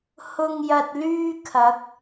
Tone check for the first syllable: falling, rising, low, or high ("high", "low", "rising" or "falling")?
low